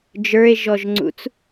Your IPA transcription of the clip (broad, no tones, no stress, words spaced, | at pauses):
d͡ʒə˞e̯ʒɔʒŋ͡ǀṵt͡s